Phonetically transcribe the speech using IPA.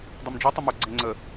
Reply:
dˤ o m d͡ʒ u tˤ ɵ m o ɡ͡ǀ ɛ ŋ͡ǀ ə

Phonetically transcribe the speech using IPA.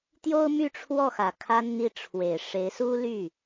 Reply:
t̪ j o˥ ʊ̯ m y˥˧ ʈ͡ʂʰ w ɔ˥˩ x ä˨˩ kʰ a˥ n n̪ i˥˩ ʈ͡ʂʰ w e˨˩ ɪ̯ ʂ e˧˥ ɪ̯ s u˥ l y˥˩

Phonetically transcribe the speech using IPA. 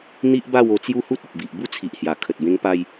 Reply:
n̪ i˦ ʔ b a˥˧ w o˧ t͡s j u˦ h u˦ t̚ ə˨ p̚ b i˨ ʔ b u˥˧ t͡sʰ i˨ ʔ h j a˨˩ kʰ ə˨ t̚ b ẽ˧ ŋ p a˧ j

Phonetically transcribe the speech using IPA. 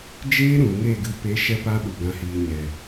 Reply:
d͡ʒ eː˦ ɾ ũ˨ ŋ e˦˨ ɡ ɨ˧ p e˨˦ ʃ ɛ˦ p a˦ ɓ u˨ ɡ ã˨ h iː˨ ɲ ɛ˨

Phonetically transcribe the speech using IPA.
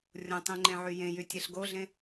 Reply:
rʲ õ tˤ ĩ ŋ͡ǃ ẽ ʕ y j ẽ j y tʲ e ɬ ɡ o ɮ ẽ

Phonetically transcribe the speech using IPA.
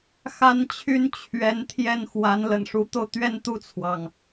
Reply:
x a˥ n t͡ɕʰ y˥ n t͡ɕʰ ɥ ɛ˧˥ n t̪ʰ j ɛ˥˩ n x w a˧˥ n l ə̰˨˩ n ʂ u˧˥ t̪ o˧ ʊ̯ t̪ ɥ ɛ˥˧ n t̪ u˥˩ t͡sʰ w ɑ˩ ŋ

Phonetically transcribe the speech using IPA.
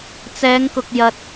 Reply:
t͡s ɛː˨˧ ŋ k ʊ˨ k̚ j ɐ˨ t̚

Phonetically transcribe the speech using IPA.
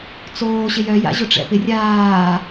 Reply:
t͡s oː ɕ ɪ j œ j a̰ ʑ ʊ ʈ͡ʂ ɛ̰ p ɪ rʲ aː

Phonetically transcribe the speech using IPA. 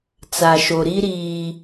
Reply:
t͡s a˨ ʃ o˨ ɾ i˦ ɾ iː˨

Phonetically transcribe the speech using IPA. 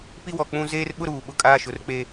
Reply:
p i˦ w ɔ˨ k͡p ũ˦ z eː˦ r ɓ ʊ˦ ɾ uː˨ ɓ ʊ˦ kʼ aː˦ ʃ ʊ˨˦ r k͡p e˦

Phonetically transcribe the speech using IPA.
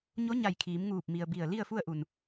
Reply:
ɲ o˧˥ ɲ a˧˩ j kʰ iː˩˧ m ŋ uː˧˩ p̚ m i˩ ə̯ b i˧˩ ə̯ l i˥˨ ə̯ f u˥˨ ə̯ ʔ u˧˩ n

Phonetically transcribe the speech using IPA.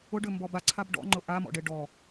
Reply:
ʊ ɖ ʏ m b ɔ b a ǀʰ a b ɖ ɔ̰ ŋ͡ǃ ʊ ʔ a m ɔ̰ ɖ e ɖ ɔ

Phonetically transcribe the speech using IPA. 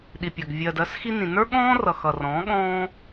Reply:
ɗ i˨ pʲ ɐ˨ ɡ vʲ ɜ˨ d ɜ˨˦ s x i˧ n ĩ˨ n ə˞˦ ɠ ɔ̃ː˦ r ʌ˨ x ʌ˨ r ɔ̃ː˨˦ ɠ ɔ̃ː˦

